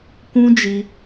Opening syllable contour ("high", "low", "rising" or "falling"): high